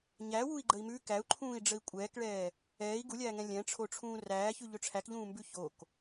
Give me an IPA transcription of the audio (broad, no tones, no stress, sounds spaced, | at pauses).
ɲ æ w u i̯ ɡ͡ǃ ə i̯ m ʉ k æ u̯ ǃʰ ũː i̯ ɖ͡ʐ ə i̯ kʷʼ ɛː k ɭ ɛː | ɛː i̯ ɡ u lʲ æː ŋ ɛ̃ lʲ ɛ̃ ʈ͡ʂʰ o ʈ͡ʂʰ ũː r æː ç ʉ ʎ ɵ ʈ͡ʂʰ æ k ʎ ũː m b ʉ ç o k